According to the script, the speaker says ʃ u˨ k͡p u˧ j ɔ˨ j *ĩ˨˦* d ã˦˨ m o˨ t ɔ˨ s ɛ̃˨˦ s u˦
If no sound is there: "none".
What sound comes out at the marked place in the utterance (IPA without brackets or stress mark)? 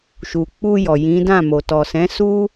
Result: ĩ˨˦